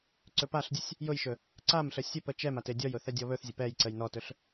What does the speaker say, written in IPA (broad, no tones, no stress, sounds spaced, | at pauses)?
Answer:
ǀ ɵ p a ɬ dʲ ʊ sʲ | j ʊ j ʃ ɵ | ǀ a m ɬ ə sʲ ɵ p ə t͡ʃ ɛ m a t e dʲ ɔ j ʊ θ ɛ dʲ ɔ β ɵ θ zʲ ə p ɛ j ǀ ə j n ɔ t ɵ ɬ